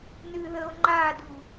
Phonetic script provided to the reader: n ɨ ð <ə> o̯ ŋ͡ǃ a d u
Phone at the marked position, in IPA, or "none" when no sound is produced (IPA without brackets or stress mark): ə